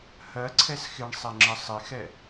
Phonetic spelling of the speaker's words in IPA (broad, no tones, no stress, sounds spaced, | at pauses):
h ɜ ǀʰ ɛ s x ɪ ɳ sˤ ɛ ŋ͡ǁ ə sˤ ɪ x ɛ